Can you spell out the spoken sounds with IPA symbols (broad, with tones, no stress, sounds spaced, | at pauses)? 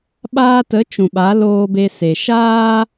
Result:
ɓ aː˧ t ə˨˦ t͡ʃ ũ˨ ɓ a˨˦ l oː˧ b e˧ s e˨ ʃ aː˦